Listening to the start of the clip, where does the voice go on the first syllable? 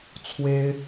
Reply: high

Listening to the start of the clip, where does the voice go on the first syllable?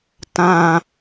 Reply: low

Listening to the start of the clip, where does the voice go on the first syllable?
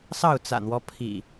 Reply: falling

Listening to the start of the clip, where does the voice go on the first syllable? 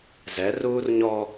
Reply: rising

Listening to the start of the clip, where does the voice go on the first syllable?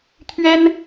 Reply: high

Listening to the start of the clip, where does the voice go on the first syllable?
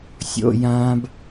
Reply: high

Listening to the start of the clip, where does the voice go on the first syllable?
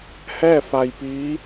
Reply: falling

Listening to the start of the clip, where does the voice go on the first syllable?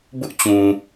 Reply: high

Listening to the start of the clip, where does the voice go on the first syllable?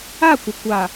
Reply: falling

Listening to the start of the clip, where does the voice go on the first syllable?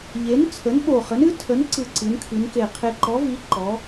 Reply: rising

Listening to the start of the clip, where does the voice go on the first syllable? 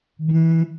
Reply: high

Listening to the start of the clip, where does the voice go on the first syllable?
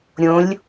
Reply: rising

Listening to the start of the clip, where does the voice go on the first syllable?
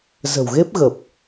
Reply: low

